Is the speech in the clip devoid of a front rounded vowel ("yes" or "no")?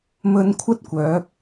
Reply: no